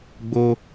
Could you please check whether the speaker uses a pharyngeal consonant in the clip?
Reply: no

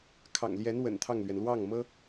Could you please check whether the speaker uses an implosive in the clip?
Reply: no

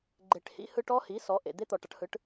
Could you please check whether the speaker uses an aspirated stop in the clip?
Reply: no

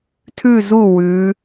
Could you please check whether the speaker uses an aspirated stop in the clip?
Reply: yes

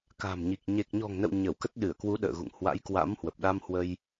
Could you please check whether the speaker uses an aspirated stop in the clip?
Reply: no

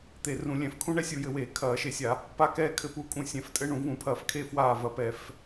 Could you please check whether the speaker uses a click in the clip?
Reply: no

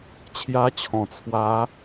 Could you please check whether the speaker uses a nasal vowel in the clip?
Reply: yes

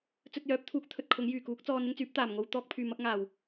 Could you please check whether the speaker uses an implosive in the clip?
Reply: no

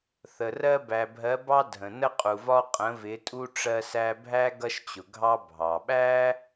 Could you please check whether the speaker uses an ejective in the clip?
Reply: yes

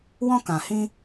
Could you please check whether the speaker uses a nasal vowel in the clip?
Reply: yes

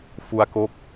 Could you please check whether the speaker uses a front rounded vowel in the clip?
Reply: no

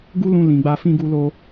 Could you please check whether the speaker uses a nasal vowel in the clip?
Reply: yes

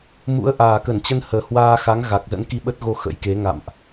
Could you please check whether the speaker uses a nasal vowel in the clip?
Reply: no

